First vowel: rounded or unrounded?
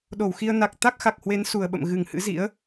rounded